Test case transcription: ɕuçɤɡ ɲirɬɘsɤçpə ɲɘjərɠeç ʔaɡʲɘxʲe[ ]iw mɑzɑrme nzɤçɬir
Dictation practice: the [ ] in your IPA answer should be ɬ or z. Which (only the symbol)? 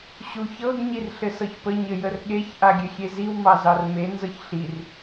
z